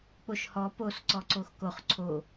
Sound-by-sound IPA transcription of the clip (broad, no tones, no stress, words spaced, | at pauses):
k͡poʃhɔ pos ǀɔǀoxkoχ ǀʰo